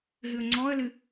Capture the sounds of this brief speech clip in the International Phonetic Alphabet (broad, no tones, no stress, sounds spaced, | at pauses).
ɦ ɨ ə̯ ŋ͡ǀ ɔ ə̯ l ɨ